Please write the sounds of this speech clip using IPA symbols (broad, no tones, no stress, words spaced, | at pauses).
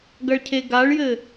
ɡɐɭcʰeɡaɭjɘ